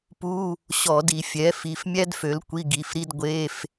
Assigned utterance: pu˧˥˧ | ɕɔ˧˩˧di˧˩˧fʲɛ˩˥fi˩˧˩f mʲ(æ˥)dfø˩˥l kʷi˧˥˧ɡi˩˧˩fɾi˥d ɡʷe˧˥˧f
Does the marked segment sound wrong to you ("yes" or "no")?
no